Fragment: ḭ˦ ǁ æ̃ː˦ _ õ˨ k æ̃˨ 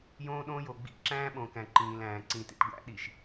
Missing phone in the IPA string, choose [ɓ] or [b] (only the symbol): ɓ